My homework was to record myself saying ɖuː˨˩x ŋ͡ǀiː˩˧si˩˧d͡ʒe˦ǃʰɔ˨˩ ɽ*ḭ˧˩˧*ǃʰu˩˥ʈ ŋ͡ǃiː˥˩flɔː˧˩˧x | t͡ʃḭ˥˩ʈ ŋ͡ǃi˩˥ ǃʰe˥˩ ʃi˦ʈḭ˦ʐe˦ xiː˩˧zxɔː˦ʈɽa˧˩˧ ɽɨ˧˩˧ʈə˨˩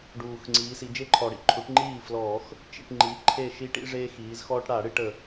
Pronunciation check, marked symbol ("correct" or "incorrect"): incorrect